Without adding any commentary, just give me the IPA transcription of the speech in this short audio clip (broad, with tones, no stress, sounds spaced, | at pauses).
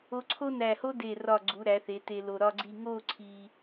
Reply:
o˧ ǀʰ o˥ n æ˧˩ h o˥ d e˧˩ r ɒ˧˩ ɡ͡ǀ u˩˧ ɾ æ˩˧ θ e˩˧ t e˧ l o˧ ɾ ɒ˥ ɡ͡ǀ i˥˧ ŋ o˥˧ ǀʰ i˧